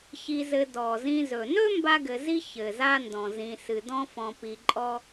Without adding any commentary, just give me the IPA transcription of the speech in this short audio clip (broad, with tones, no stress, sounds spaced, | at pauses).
ç i˨ z ɘ˨ d ɔ˩ z ĩ˨ z ɵ˩ n ɵ˥ m b a˥ ɡ ɘ˨ z i˥ ç ɘ˩ z a˥ n d ɔ̃˩ z ĩ˨ s ɨ˩ d ɔ̃˥ f ɔ̃˨ p i˨ ǃʼ ɔ˥